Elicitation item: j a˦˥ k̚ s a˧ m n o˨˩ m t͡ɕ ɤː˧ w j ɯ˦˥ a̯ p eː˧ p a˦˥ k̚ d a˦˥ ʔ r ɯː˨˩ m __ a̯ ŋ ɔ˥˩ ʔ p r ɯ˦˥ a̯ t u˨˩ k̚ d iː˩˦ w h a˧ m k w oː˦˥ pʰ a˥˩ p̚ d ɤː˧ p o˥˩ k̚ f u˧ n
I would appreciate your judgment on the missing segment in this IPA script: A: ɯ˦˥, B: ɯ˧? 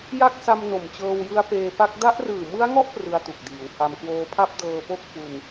A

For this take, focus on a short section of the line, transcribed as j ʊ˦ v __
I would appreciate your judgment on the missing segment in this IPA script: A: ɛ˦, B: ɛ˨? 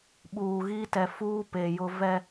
A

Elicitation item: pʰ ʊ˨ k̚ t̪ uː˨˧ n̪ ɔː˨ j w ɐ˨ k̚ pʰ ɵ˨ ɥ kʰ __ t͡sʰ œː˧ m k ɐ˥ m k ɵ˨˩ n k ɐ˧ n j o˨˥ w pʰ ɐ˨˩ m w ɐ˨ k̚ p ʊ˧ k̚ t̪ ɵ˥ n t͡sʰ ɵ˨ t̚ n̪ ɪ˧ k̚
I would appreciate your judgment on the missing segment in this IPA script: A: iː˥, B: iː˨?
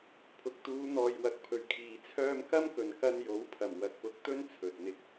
B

